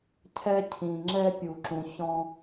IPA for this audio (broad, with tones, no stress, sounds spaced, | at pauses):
cʰ ɛ˦ cʰ ĩ˨ ŋ͡ǁ ɛ˦ pʲ u˨ ǁ ũ˨ ç ɔ̃˦